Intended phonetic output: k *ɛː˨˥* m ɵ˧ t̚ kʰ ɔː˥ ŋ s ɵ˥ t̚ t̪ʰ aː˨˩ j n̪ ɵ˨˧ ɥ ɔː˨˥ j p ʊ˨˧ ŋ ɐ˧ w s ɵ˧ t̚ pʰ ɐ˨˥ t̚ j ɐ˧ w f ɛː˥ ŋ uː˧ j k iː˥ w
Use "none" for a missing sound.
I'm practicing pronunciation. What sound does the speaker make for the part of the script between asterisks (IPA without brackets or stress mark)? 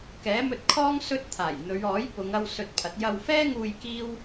ɛː˨˥